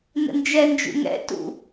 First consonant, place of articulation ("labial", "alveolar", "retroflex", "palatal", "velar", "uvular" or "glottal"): alveolar